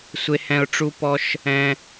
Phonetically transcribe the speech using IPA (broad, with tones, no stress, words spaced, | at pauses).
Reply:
sʷe˧hɛ̃˧ʊ̯ ʈ͡ʂu˧pɔ˧ʃ | ɛ̃˧